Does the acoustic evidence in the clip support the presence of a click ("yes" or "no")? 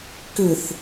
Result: no